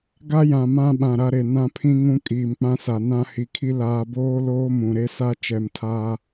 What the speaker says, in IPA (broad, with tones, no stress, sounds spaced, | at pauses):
ɡ a˦ j ã˨ m ã˦ ɓ ã˨ ɾ a˦ ɾ e˨ n ã˦ pʰ ĩ˦ ŋ ũ˦ kʼ iː˨ m k͡p ã˦ s a˨ n ã˦ h i˨ kʰ i˦ l aː˨ b oː˦ l oː˦ m ũ˨ ɾ e˦ s a˦ t͡ʃ ɛ˨ m tʰ aː˦